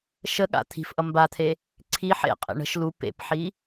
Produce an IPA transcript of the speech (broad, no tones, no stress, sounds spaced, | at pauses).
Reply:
ʃ ə ɠ a̰ t̪ʰ i̤ f ʔ ʌ m b a t̪ʰ e | ǀʰ i ħ ḛ qʼ ḛ ɳ ə̤ ʃ l u p ḛ p ħ i